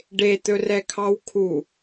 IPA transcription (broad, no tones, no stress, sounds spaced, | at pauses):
ɖ e t̪ ɵ r ɛ kʰ ɑ w kʰ u